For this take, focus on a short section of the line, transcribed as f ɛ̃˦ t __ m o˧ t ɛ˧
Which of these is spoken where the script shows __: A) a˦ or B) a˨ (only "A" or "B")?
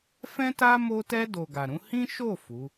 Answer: A